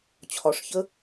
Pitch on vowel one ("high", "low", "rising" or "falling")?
rising